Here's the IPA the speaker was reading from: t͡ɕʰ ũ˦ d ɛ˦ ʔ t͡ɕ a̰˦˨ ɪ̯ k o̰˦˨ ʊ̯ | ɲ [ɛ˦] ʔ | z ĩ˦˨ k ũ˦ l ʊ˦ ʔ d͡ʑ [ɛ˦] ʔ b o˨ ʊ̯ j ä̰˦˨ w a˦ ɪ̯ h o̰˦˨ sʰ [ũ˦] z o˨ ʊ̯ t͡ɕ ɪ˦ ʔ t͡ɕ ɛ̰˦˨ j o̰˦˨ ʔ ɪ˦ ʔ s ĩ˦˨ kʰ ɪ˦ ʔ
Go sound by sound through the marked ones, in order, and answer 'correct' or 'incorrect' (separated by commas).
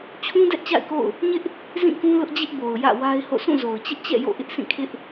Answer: incorrect, incorrect, incorrect